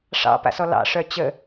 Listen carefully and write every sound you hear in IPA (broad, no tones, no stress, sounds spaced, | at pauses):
ʂ ɑ̰ p a̰ s ɔ l ɑ̰ ʂ œ t͡ɕ ə